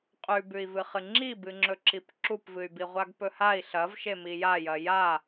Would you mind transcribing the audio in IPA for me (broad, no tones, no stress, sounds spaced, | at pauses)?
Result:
qʼ ʉ b ʉ i̯ v ɨ χ ɨ ŋ͡ǁ i b ɨ ŋ͡ǁ ɵ ǁ i p ǁ u p v ɨ y̯ b i ʁʷ a ɡ p ɵ h a i̯ ɬ ɐ v ʃ e m i j a j ɐ j a